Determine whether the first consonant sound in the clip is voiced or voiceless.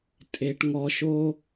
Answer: voiceless